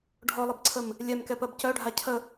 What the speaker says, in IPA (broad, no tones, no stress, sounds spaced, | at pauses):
ɖʱ ɔ lˠ ɐ b ǀʰ ə m | lʲ ɛ m k ɛ p ɜ b c œ ɖʱ a cʰ ə